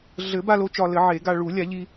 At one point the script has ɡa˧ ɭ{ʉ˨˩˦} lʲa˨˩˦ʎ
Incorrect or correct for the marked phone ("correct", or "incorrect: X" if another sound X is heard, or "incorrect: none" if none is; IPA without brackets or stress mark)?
incorrect: u˨˩˦